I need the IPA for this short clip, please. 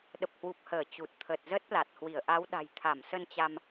ɗ ə˨˩ p̚ h w u˨˩ p̚ h əː˧˩ t͡ɕ u˨˩ t̚ t̪ʰ ə˨˩ t̚ z ə˦˥ t̚ l a˨˩ t̚ h w i˧˩ ə̯ ʔ a˨˦ w ɗ a̤˨˩ j t̪ʰ a˧˩ m s ə˧ n t͡ɕ a˧ m

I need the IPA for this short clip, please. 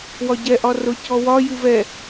w ɒ ɟ ɛ ʔ ɒ r ʊ c ɔ w ɒ j ɨ v ɛ

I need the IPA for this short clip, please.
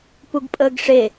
p u ɡ pʼ əː ɡ ʂ e

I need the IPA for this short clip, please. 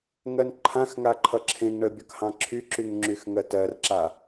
ŋ ɜ n ǃʰ ã x ŋ a ǃʰ ʌ ǁʰ ẽ ŋ ɳ ə bʲ ʌ k h ɑ̃ ǁʰ y ǁ y ŋ ŋ͡ǁ y x ŋ ɜ t ɜ r ǁ a

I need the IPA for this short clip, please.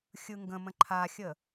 xʲ ɯ ŋ ɡ ə̃ m ə̃ ǃʰ a xʲ ə

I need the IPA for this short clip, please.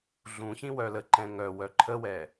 ɮ ũ ç ĩ w œ l ə ǃ ɛ̃ ŋ œ w œ ǃʰ ə w ɛ

